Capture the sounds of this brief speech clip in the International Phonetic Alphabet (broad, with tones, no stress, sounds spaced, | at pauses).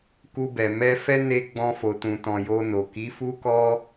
k u˧ b ɛ˨ m ɛ˧ f ɛ˦ n e˦ ɡ͡b ɔ̃˧ f o˨ t ũ˨ t ɔ̃˨ j o˧ n o˨ k i˨˦ f u˦ k ɔ˦